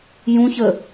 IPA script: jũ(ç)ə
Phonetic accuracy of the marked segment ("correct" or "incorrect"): correct